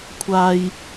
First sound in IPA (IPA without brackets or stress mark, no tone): kʷʰ